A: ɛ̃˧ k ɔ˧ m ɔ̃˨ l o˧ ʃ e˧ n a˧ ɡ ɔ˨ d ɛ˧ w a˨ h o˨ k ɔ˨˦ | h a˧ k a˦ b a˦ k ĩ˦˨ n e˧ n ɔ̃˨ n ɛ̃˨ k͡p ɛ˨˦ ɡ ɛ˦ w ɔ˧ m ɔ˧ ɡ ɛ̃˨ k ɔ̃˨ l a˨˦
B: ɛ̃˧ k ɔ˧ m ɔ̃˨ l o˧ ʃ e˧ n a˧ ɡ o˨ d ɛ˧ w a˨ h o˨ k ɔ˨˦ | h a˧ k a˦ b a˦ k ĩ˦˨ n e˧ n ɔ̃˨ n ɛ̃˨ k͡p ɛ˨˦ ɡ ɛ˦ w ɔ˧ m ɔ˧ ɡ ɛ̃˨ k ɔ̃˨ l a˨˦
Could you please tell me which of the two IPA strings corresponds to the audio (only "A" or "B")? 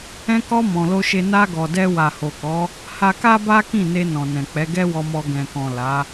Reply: A